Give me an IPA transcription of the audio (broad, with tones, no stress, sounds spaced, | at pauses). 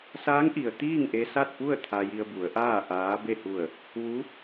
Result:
s aː˧˥ ŋ ʔ i˩ ə̯ t̪ iː˥˨ ŋ ʔ e˧ s a˥˨ t̚ p u˥˨ ə̯ t̪ʰ a˧ j i˧ ə̯ b u˩˧ ə̯ ʔ aː˥˨ ʔ aː˧˥ b e˥˨ h u˧˩ ə̯ | ʋ u˧˥